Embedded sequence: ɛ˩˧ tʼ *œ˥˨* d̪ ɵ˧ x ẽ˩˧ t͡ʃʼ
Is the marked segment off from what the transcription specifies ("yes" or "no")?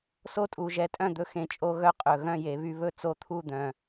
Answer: yes